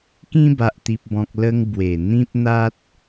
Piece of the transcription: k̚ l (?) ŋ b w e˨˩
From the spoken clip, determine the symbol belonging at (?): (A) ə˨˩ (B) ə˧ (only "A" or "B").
B